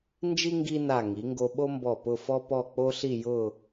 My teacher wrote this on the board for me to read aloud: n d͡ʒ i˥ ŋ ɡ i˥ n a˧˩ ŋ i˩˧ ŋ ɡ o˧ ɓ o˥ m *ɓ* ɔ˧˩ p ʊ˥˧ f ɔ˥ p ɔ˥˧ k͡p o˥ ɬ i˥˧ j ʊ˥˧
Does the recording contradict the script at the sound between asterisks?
yes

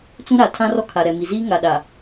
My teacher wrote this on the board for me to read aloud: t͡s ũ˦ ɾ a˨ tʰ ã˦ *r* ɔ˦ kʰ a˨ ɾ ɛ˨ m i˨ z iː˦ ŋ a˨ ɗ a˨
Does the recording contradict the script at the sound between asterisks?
no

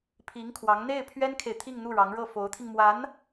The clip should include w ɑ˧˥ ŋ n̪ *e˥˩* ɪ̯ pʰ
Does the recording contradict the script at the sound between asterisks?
no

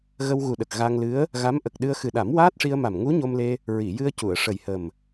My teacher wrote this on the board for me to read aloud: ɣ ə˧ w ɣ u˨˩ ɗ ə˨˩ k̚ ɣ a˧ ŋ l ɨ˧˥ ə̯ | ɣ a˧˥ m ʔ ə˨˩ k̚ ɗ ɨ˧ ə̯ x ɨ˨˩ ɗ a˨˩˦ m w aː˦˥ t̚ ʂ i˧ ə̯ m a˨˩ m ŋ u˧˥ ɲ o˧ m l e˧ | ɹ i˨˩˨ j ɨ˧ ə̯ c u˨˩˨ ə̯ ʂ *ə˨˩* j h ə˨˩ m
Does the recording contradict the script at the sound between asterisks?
no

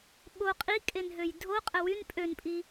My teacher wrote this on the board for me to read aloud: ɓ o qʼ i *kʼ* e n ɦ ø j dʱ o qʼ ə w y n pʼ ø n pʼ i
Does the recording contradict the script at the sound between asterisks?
no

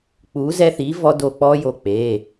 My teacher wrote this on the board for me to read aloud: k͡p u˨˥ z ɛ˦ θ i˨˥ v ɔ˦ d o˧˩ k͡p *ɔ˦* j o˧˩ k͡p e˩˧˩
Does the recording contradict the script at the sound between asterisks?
no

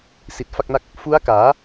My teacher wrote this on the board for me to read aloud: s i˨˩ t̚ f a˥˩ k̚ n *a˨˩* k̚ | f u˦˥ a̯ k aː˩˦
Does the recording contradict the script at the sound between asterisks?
yes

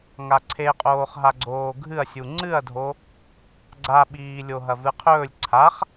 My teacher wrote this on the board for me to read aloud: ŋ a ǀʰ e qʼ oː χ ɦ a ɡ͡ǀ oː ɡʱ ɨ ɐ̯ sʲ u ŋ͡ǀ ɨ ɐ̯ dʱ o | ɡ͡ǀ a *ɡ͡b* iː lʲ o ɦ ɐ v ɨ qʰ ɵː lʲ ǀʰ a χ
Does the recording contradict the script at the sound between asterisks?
yes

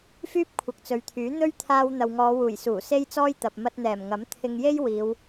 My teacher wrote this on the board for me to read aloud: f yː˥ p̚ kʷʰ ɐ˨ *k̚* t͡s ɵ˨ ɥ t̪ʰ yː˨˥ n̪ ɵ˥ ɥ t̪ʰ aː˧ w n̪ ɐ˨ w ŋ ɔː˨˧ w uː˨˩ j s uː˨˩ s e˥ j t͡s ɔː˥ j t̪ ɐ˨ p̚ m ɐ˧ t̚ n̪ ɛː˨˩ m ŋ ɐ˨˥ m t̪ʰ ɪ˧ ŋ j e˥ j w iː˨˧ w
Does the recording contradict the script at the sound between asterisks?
no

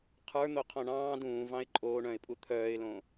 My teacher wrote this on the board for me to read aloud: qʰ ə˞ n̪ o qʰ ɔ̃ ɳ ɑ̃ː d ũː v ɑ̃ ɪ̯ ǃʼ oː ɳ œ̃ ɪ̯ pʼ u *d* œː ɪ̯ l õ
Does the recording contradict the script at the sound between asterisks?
yes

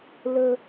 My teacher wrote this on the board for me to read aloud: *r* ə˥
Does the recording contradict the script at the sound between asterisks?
yes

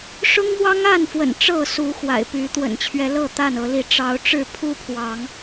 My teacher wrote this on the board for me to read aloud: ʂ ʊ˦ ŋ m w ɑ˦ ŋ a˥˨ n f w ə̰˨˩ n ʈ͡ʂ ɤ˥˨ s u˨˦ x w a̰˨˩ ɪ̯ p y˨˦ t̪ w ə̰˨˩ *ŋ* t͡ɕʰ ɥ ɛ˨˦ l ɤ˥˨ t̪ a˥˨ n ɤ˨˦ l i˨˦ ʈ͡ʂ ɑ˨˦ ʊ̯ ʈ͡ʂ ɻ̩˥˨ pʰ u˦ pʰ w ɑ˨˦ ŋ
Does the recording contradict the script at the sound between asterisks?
yes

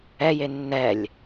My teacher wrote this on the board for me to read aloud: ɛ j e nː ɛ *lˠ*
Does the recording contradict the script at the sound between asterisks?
yes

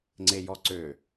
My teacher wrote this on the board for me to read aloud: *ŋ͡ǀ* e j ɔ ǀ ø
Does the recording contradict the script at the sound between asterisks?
no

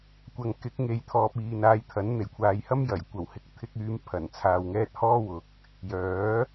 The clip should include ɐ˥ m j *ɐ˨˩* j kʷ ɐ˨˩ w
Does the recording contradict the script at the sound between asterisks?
no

